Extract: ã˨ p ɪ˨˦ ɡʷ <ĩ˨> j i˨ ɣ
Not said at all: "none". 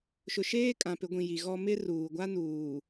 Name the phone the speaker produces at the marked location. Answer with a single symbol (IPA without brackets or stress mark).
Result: ĩ˨